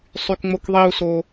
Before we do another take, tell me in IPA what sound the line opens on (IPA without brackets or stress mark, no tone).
sˤ